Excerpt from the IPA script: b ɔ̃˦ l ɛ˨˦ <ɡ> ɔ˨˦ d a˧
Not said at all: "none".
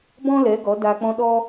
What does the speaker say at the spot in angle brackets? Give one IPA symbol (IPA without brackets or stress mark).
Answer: ɡ